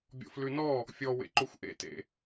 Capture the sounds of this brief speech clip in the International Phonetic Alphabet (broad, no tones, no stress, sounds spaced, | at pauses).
bʲ ɔ̰ f l ʉ n ɔ | fʲ ɔ w ḛ ǃ o xʷ ʔ ḛ t ḛ